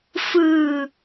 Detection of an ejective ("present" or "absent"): absent